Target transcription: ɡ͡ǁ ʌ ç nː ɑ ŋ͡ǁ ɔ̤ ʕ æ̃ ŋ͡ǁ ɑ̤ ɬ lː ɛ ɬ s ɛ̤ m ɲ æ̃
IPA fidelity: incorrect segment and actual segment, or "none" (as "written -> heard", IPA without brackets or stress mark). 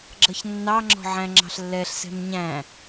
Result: none